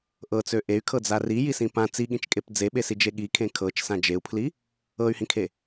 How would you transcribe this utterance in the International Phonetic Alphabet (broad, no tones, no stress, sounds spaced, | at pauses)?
ʔ ɤ t͡s ø ʔ e y̯ kʰ ɤ d͡z a r i j i s ĩ p ã t͡s i ɠ ĩ t͡ʃ kʼ e p d͡z e ɓ e s i d͡ʒ e ɠ i kʰ ẽ kʰ ɤ t͡ʃ s ã d͡ʒ e u̯ pʰ l i | ɤ y̯ h ĩ kʰ e